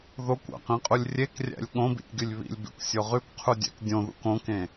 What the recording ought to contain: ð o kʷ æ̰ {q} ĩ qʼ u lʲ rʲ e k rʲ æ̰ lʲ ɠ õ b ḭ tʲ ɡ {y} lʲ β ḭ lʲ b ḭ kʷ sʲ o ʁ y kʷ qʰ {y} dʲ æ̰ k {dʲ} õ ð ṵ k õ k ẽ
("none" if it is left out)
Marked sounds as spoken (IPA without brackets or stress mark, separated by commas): q, y, u, dʲ